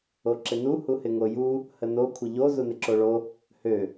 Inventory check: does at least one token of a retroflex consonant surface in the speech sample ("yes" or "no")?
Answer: yes